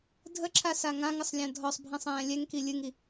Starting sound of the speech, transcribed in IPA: dʱ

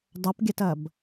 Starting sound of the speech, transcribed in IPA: dˤ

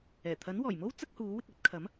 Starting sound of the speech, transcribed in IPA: ɛː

